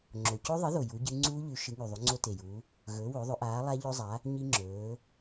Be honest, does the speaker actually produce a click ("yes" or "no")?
yes